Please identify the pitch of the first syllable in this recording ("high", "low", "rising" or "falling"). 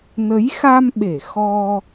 rising